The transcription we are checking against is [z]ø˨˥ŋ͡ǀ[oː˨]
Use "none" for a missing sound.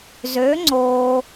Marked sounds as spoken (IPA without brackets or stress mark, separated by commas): z, oː˨